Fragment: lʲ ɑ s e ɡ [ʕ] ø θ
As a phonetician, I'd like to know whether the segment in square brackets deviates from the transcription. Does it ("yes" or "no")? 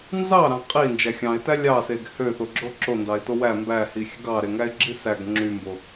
yes